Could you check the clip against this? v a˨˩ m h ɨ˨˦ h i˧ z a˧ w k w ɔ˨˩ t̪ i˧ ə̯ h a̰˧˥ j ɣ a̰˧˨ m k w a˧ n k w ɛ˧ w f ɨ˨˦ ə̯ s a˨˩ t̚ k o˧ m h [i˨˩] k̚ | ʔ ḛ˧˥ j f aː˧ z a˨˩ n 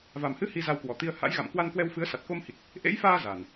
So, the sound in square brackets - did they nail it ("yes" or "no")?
yes